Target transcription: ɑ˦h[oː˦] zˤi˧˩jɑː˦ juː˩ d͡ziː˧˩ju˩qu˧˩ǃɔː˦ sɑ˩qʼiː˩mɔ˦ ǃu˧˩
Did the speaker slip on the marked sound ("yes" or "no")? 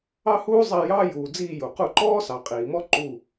yes